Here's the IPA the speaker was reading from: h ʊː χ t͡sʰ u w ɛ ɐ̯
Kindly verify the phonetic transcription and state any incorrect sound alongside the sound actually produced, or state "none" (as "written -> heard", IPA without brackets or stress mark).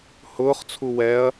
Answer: none